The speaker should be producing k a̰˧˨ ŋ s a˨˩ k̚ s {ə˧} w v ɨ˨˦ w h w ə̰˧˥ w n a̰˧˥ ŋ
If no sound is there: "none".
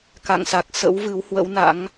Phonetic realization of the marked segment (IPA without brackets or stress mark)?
ə̰˧˥